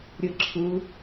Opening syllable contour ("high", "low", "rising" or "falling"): rising